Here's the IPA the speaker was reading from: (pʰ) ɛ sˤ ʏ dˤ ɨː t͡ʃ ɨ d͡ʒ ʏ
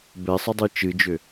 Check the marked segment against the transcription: incorrect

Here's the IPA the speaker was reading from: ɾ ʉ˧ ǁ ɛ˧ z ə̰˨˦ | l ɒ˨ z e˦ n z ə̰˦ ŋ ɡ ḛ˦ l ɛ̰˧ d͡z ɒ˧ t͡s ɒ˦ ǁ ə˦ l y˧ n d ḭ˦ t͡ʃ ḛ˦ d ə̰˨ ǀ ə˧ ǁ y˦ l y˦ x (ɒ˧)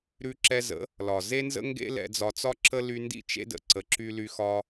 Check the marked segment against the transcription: incorrect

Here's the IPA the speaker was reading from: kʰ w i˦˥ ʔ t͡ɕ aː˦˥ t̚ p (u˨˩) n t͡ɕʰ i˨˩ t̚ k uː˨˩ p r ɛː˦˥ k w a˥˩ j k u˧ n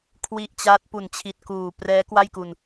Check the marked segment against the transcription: correct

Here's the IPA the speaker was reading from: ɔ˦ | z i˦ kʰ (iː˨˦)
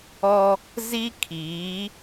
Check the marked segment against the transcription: correct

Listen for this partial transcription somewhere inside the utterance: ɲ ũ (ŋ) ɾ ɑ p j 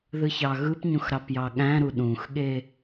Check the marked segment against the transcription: incorrect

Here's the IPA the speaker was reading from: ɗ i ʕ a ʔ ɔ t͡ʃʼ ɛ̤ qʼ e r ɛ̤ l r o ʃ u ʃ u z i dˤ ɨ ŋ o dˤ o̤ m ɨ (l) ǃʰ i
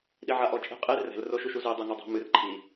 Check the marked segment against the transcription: incorrect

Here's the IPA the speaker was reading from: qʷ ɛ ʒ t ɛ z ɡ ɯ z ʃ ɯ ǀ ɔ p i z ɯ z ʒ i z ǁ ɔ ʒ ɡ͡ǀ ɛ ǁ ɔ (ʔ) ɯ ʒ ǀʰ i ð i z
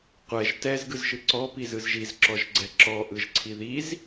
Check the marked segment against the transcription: correct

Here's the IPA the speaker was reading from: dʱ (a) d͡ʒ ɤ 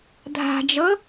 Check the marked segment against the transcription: incorrect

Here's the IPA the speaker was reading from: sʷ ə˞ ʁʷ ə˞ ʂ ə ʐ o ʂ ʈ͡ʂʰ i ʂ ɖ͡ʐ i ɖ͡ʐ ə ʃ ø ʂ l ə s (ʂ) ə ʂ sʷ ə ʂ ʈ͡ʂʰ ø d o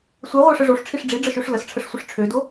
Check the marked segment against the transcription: incorrect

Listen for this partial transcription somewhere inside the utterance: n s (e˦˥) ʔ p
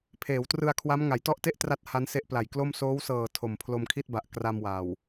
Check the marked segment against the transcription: correct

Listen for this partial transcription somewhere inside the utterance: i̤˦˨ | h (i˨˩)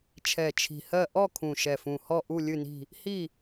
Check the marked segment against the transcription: incorrect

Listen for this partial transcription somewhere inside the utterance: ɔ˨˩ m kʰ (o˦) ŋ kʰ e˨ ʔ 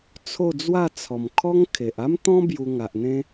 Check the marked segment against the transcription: incorrect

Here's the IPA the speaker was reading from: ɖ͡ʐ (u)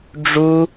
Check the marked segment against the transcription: correct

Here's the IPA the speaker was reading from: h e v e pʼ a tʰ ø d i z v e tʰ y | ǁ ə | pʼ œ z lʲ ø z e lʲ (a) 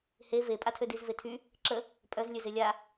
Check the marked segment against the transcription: correct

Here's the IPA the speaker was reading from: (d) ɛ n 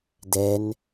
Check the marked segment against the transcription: correct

